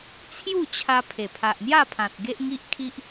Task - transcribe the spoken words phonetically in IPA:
t͡sʰ j u˥˧ t͡ɕʰ a˧ pʰ e˨˩ pʰ a˨ ʔ n̪ j a˥˧ pʰ ã˨ t̚ ɡ e˦ ʔ ŋ i˦ ʔ kʰ i˦ ʔ

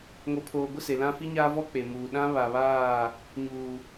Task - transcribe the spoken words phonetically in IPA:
ŋ o˨ pʰ oː˨ ɡʷ ɪ˦˨ s e˨ l ã˦ f i˦ ɲ aː˦ v ɔ˦ k͡p e˨ m uː˨ ɗ ã˦ β a˨ β aː˦˨ | ɲ uː˨

